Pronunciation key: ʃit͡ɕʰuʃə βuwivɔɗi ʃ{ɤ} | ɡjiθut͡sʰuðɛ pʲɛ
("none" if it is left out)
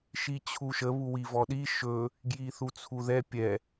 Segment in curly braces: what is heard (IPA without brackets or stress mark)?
ɵ